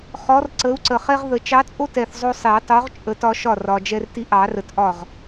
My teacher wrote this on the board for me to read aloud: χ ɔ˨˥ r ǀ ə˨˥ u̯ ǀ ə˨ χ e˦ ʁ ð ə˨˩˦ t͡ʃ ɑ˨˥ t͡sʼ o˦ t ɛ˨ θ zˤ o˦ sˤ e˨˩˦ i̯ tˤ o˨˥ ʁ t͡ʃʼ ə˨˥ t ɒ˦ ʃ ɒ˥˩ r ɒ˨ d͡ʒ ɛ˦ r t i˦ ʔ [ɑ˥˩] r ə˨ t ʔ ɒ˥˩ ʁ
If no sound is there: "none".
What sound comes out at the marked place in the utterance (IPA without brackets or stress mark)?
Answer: ɑ˨˩˦